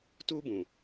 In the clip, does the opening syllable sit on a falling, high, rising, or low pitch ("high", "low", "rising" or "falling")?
high